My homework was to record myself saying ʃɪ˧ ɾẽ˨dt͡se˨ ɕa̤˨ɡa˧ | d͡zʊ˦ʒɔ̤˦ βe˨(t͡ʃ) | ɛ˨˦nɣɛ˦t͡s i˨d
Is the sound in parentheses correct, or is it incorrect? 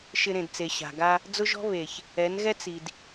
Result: incorrect